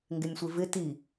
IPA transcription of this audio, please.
ŋɡɪnʲsʷɪvɪ ti

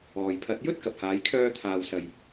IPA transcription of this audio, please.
ɔː˨jpʰɐ˧t̚ jɵ˥t̚kɐ˨p̚haː˨˧jkʰœː˧ t̪ʰaː˨wsɐ˨j

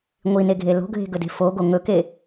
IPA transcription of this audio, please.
ŋʷineɡʱe lo̤ɡʱe̤ɡɵde̤ foɡo ŋɵke

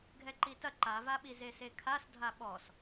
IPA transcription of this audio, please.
ɡʱɛǃitɐ ǃavaɓi zesekʰas dʱaɓɔs

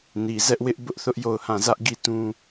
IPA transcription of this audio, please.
ni˨zɛ˦ʔwɪ˦ʔ bʊ˦ʔθʊ˦ʔjo˦˨ʊ̯hã˦˨ zä˦ʔɡi˦˨tũ˦

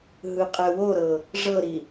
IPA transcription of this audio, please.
ɦɯqʼɛwoɾɤ | ʐɤɾi

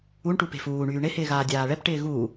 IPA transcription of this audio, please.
uɳʈu pe̤fuːɳyː ɳɪhɪːɣaː dʲaːɭɛp ʈɪːɣu

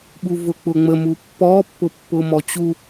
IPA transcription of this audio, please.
ɓuvʊk͡pʊŋ͡mə mupːɔ pːʊpːʊmɔt͡ɕu

